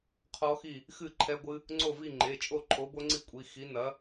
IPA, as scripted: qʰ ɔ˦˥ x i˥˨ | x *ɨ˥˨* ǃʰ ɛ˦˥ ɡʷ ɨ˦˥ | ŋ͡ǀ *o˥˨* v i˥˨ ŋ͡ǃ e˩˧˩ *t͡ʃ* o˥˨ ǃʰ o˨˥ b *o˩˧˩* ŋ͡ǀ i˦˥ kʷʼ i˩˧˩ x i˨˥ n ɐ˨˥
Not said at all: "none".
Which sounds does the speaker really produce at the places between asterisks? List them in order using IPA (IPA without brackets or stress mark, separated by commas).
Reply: ɨ˥˨, o˥˨, t͡ʃʼ, o˦˥